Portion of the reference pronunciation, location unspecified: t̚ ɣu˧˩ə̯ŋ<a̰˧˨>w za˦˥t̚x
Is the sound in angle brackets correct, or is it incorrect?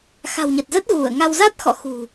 incorrect